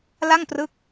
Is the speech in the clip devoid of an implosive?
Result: yes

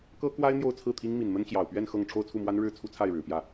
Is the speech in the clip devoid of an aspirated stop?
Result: no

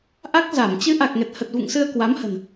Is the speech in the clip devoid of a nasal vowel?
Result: yes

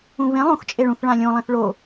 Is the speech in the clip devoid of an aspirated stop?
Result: yes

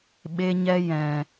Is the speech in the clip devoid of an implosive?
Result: no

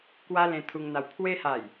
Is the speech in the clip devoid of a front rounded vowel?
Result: yes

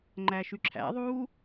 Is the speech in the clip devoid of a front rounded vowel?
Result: no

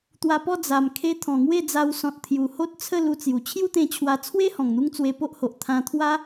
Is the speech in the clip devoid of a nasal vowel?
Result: no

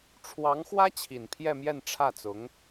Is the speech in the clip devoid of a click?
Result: yes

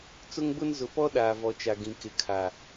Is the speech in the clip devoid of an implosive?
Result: no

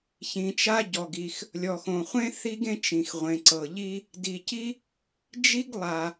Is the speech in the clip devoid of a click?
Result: no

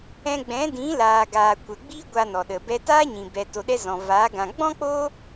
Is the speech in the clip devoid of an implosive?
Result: no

